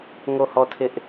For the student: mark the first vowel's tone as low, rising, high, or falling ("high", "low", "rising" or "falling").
falling